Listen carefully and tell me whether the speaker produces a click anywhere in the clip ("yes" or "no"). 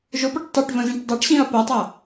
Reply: no